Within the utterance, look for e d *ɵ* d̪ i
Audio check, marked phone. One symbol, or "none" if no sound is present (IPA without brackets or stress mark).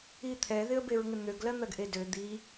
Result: ø